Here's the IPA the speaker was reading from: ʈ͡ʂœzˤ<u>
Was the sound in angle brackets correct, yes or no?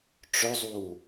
yes